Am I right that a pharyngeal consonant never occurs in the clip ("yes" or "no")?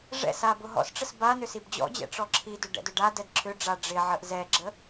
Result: no